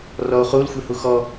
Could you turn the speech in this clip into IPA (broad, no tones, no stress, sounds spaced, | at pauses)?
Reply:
r ɔ o̯ χ u l xʷ e h u x ɔ